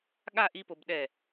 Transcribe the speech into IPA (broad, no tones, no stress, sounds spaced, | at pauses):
ɠ a ʔ i p o b ɗ ɛ